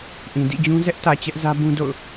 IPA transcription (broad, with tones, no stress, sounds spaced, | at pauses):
ʔ ĩ˨ d ḭ˦˨ d͡ʑ ũ˦ z ɛ˦ ʔ t ä˨ t͡ɕ ɛ˦ ʔ z ä˦ b ũ˦ d o̰˦˨ ʊ̯